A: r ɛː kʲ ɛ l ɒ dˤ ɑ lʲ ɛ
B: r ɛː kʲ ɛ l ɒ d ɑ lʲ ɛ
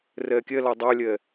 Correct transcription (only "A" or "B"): A